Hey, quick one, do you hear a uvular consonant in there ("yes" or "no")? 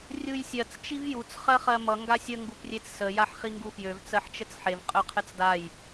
yes